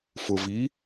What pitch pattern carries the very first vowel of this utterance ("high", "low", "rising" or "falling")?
low